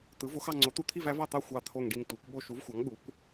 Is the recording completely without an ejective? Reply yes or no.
yes